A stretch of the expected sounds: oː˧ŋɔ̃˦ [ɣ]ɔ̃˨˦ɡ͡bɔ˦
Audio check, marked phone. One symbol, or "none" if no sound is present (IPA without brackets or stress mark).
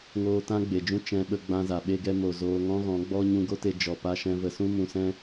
ɣ